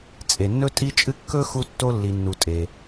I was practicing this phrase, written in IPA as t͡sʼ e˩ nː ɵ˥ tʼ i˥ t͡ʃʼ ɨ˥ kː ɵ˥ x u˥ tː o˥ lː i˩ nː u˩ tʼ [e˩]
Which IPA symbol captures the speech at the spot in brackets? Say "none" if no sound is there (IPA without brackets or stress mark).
e˩